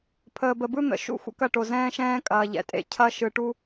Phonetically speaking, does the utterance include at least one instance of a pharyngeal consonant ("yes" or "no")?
no